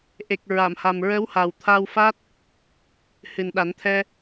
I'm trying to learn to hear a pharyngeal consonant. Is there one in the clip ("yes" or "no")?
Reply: no